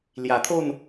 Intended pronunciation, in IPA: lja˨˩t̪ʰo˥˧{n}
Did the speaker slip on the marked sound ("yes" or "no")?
no